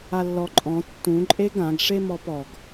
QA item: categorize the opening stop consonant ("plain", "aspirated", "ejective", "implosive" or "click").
click